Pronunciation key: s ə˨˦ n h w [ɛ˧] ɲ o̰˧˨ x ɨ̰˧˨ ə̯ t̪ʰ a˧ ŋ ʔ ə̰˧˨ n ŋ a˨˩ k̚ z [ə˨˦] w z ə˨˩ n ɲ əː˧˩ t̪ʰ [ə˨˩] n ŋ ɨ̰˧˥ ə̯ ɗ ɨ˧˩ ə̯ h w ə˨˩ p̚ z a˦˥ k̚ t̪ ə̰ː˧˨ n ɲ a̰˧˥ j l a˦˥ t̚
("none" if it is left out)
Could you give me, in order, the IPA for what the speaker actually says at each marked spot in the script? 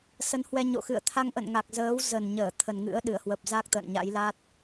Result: ɛ˧, əː˨˦, ə˨˩

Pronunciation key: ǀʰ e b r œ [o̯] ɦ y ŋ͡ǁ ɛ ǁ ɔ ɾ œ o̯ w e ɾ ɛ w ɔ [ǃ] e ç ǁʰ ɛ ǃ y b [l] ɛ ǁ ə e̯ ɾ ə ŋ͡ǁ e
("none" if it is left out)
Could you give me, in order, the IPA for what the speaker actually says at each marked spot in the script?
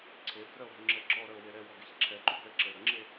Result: o̯, ɡ, ɭ

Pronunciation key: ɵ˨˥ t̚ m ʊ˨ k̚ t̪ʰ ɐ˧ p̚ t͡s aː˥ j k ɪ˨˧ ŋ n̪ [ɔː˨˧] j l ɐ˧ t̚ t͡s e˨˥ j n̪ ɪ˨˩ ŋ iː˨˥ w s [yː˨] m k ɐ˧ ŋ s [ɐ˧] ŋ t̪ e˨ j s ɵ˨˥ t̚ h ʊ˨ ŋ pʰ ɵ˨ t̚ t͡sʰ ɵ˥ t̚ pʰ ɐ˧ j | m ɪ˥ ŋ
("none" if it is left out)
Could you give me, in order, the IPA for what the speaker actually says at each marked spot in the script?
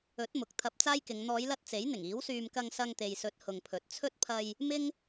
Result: ɔː˨˧, yː˧, ɐ˧

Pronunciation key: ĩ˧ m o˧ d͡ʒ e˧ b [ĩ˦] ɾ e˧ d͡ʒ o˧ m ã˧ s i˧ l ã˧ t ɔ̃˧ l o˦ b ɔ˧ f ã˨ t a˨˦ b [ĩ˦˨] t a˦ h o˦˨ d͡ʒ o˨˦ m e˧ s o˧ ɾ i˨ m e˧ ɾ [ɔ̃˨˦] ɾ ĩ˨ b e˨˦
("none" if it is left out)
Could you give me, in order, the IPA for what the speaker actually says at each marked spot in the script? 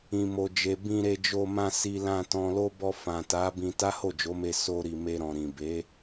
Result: ĩ˧, ĩ˧, ɔ̃˨

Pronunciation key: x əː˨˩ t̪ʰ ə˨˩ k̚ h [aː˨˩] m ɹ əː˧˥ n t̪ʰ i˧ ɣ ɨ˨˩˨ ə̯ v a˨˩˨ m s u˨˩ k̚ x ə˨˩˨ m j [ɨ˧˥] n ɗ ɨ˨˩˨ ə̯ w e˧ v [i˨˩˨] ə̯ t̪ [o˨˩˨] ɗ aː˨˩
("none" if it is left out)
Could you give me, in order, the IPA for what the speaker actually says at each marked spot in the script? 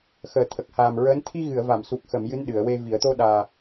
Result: aː˨˩, ɨ˧˥, i˨˩˦, o˧

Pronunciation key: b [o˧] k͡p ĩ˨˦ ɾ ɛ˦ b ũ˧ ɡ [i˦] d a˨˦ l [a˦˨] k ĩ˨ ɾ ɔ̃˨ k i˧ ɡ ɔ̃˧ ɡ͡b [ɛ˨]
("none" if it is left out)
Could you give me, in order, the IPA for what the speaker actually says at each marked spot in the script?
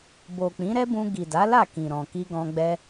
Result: o˨, i˨, a˦˨, ɛ˦

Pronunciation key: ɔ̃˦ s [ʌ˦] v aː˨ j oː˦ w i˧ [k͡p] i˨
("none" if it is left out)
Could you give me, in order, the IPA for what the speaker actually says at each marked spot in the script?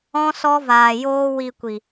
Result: ɔ˦, kʷ

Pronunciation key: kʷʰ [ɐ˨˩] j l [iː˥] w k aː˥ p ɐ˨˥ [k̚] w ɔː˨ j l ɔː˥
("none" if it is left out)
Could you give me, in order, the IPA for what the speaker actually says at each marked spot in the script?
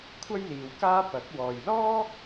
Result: ɐ˥, iː˨, k̚

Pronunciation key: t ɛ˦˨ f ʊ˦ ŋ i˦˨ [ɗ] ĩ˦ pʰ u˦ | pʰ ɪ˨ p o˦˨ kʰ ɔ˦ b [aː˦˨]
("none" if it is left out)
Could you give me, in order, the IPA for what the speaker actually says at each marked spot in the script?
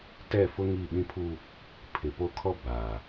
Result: ɓ, aː˨

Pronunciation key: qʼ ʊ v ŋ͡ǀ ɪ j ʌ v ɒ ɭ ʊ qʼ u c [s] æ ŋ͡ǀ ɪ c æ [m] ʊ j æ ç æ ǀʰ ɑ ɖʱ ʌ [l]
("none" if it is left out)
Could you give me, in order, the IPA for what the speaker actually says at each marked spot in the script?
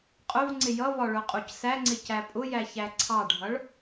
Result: s, pʼ, ɭ

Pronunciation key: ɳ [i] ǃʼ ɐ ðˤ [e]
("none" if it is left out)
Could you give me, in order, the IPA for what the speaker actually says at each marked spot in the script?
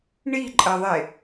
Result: i, e

